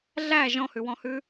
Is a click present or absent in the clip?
absent